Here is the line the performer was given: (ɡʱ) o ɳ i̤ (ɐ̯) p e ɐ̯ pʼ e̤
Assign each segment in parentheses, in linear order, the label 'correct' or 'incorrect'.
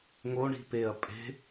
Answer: incorrect, incorrect

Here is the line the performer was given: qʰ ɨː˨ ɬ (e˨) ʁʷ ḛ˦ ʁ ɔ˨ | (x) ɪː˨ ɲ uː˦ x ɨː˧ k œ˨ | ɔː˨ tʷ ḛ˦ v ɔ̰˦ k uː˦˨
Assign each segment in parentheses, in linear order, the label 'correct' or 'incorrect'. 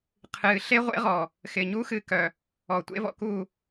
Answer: incorrect, correct

